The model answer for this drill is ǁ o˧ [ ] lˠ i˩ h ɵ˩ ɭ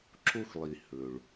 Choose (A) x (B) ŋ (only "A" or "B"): A